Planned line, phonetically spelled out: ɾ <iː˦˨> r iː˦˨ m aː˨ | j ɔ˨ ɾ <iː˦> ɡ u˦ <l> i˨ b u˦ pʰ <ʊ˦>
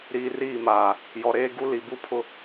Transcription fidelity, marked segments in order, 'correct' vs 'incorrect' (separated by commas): incorrect, incorrect, correct, correct